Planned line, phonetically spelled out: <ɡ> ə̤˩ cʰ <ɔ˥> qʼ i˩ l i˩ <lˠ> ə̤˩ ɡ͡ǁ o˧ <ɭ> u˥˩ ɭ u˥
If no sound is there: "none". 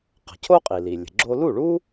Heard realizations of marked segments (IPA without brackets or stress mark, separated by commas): q, o˥, lʲ, l